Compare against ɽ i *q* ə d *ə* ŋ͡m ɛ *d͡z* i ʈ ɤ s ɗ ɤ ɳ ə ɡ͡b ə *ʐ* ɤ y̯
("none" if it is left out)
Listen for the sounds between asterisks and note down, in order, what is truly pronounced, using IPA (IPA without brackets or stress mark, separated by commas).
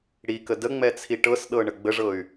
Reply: k, ə, t͡sʰ, ʐ